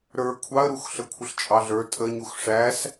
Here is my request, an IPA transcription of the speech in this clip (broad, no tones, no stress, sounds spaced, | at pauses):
ɾ ə˞ kʷʰ ɑ ə̯ ɾ u x ɬ ə kʷʰ ə ɬ t͡ʃʼ ɑ ɮ ə˞ tʼ ə ɲ u x ʂ æ s